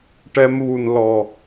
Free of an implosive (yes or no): yes